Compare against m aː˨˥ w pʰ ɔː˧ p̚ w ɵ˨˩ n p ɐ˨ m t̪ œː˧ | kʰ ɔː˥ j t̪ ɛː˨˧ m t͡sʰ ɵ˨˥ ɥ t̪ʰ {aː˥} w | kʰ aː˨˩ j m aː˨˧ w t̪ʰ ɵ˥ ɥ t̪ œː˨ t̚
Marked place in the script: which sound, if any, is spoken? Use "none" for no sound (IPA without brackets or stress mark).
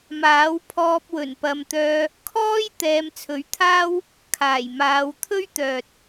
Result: aː˥